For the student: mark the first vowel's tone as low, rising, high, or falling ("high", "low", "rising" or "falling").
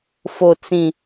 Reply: low